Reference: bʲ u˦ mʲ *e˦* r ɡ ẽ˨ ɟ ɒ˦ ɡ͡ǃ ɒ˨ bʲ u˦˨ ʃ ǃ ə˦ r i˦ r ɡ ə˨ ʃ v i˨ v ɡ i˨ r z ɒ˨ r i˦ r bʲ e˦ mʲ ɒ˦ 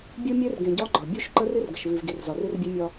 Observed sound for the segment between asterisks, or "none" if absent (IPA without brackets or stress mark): e˦